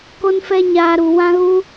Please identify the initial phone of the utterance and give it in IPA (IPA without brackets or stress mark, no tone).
k